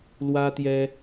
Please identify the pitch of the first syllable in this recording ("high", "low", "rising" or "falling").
high